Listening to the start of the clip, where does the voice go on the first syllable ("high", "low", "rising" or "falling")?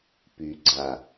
low